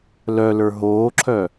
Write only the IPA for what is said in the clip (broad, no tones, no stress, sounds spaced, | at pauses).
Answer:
l œ l ə˞ ɦ oː ǁʰ œ